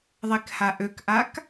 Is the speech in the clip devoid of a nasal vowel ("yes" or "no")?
yes